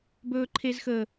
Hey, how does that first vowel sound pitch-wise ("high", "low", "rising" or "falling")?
high